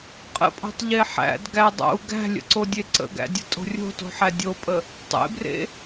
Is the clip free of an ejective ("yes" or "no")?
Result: no